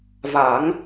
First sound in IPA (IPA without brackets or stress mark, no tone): v